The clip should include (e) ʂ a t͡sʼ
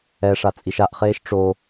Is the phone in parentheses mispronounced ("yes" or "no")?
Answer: yes